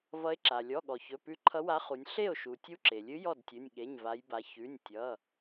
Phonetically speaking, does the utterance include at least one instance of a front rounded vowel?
no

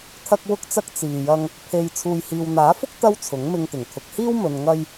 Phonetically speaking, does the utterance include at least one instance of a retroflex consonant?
no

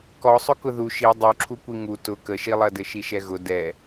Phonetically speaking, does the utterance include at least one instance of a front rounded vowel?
no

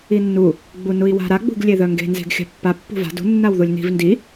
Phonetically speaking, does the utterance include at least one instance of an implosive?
no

